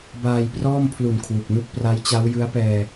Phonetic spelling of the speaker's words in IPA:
b aː˧ j p r ɔː˥˩ m pʰ l u˨˩ n kʰ w u˨˩ k̚ n u˥˩ k̚ p r a˦˥ j t͡ɕ a˦˥ w j ɯ˦˥ a̯ p ɛː˧

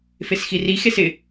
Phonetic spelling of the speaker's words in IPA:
f e s x i r i x e s ɪ

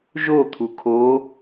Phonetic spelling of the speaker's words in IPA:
ʒ o t̪ʰ u kʰ o

